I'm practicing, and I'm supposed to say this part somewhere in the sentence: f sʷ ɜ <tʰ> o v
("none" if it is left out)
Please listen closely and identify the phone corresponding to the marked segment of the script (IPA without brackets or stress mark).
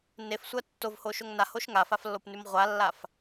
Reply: tː